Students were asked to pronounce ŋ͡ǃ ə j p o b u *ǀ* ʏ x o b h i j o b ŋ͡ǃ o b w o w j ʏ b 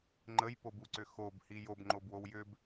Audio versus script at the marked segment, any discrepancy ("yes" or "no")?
no